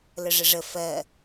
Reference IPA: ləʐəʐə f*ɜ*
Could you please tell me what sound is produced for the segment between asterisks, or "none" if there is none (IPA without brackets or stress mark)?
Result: ɜ